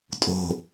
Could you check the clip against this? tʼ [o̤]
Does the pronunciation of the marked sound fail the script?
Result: no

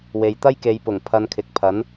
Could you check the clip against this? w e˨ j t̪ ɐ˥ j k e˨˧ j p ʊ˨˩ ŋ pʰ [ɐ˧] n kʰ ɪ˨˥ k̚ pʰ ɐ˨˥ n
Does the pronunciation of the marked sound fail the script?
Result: no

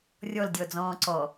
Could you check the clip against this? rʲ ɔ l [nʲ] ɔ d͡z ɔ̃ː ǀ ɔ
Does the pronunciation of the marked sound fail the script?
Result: yes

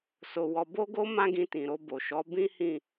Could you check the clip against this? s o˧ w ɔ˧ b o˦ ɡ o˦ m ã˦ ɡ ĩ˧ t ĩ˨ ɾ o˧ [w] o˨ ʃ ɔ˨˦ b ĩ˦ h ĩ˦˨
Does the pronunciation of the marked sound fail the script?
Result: yes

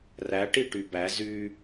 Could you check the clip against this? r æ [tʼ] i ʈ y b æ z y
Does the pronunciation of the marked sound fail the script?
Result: yes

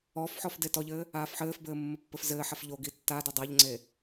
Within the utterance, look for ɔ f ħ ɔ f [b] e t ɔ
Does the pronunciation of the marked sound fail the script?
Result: yes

